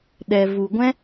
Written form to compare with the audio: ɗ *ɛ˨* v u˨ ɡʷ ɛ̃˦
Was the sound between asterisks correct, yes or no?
yes